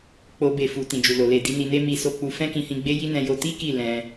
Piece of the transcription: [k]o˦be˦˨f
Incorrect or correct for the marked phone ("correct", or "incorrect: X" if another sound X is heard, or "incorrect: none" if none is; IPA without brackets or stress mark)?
incorrect: k͡p